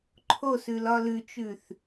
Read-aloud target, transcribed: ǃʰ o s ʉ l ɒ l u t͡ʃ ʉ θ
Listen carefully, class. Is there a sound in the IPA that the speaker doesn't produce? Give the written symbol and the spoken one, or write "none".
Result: u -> ʉ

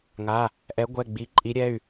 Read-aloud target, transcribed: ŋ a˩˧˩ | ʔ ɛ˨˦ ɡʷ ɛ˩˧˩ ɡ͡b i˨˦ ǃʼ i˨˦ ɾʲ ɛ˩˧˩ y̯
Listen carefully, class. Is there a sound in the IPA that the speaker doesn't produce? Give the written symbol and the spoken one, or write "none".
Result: none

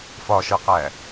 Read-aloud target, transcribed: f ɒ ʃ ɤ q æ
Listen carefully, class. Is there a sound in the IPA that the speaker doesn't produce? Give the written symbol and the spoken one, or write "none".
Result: none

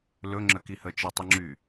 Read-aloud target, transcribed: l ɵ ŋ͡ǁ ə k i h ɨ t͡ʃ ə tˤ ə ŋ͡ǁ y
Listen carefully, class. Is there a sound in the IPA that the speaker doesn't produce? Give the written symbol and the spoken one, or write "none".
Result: ɨ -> ə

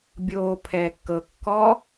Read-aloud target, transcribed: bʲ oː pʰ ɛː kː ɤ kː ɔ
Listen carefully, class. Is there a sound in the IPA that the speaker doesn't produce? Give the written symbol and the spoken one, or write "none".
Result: none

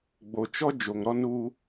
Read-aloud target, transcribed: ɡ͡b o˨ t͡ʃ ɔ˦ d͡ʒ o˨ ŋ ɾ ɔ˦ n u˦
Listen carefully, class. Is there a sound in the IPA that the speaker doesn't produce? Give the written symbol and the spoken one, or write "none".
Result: none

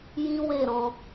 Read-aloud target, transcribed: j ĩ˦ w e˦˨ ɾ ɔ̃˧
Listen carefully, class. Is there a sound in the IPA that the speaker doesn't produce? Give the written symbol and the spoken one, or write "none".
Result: none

